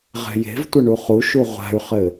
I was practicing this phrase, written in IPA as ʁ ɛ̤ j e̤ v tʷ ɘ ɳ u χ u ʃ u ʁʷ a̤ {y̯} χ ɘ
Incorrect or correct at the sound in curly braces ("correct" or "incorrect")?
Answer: correct